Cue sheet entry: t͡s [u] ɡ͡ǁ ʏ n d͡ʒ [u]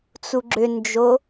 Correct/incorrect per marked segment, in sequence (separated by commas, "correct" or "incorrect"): correct, incorrect